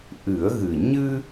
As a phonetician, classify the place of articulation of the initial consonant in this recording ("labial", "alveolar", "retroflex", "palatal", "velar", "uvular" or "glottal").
glottal